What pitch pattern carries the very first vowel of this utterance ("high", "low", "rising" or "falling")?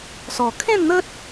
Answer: low